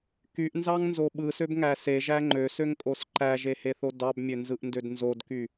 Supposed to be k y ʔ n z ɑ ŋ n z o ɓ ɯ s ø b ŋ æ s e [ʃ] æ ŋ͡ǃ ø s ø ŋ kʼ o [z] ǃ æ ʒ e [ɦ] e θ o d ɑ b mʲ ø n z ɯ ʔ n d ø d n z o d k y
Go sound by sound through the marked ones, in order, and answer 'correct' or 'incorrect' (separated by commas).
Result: incorrect, incorrect, incorrect